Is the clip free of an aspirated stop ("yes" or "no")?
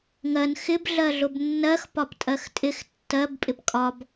yes